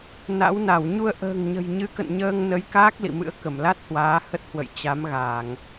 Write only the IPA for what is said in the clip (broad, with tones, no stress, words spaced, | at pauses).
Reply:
na̰˧˥wna˧˩w ɲu˧ə̯ʔə̤ː˨˩ŋɲə̤˨˩j ɲɨ˨˦kə̰˧˨n ɲəː˧ŋnə˨˦j kaː˦˥k̚lḭ˧˨mɨ̰˧˥ə̯ kə˧˩mla˦˥t̚hwaː˨˦ hə˦˥t̚hwə̰˧˨j t͡ɕa˨˦mɣaː˧˩˨ŋ